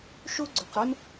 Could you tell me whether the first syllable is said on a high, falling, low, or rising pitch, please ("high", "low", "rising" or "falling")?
high